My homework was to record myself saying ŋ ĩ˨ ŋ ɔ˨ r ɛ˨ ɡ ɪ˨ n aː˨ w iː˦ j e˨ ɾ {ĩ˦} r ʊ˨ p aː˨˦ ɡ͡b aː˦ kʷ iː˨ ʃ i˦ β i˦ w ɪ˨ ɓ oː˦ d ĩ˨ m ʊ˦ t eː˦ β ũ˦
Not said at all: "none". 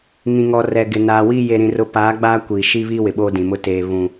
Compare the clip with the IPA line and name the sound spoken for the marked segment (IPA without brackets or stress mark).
ĩ˨